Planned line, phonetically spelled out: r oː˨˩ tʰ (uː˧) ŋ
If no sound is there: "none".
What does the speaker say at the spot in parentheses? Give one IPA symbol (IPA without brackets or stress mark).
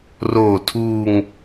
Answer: uː˧